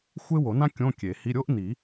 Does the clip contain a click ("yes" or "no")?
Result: no